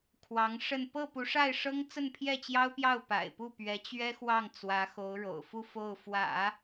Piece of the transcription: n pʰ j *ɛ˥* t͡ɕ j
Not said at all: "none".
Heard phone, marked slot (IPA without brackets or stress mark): ɛ˥˩